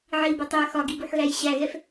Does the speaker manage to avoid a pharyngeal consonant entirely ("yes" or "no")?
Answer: no